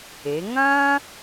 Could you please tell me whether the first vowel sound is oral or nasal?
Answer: oral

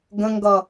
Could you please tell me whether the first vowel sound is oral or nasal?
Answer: nasal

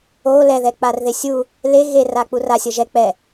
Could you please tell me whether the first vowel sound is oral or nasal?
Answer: oral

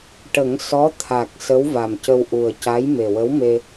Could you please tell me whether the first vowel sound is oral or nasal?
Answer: oral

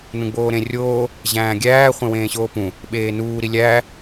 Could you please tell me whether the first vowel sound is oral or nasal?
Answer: nasal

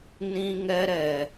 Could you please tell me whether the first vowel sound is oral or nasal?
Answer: nasal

